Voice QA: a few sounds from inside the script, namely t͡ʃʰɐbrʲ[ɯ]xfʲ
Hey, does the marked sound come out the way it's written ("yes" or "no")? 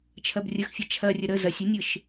no